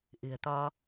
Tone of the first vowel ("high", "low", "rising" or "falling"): low